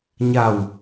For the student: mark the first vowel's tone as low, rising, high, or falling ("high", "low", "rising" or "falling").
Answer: low